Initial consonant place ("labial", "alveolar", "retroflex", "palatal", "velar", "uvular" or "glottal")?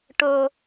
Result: retroflex